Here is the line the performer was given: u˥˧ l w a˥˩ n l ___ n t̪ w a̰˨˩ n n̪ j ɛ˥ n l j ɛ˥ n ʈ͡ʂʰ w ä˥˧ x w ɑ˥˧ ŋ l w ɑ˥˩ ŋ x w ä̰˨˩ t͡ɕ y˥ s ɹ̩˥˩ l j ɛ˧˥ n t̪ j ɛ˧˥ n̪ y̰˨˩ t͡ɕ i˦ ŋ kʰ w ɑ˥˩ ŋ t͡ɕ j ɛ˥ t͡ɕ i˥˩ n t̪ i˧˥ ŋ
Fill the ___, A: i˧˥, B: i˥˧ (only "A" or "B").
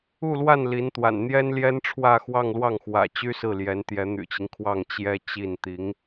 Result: A